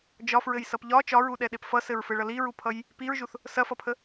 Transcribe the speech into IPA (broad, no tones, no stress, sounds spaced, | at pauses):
d͡ʒ ɒ f ɹ ɘ j s ʌ p ʎ ɒ t͡ʃ ɒ ɹ u ɗ ɛ ɗ e p f ʌ s ɘ ɹ f ɘ ɭ ʌ l i ɹ u pʰ ʌ j | p i ɹ ʒ u θ | s ɐ f ʌ pʰ ə